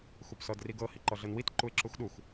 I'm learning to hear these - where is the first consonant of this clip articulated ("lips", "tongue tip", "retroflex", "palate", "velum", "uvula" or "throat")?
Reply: velum